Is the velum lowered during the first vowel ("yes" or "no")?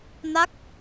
no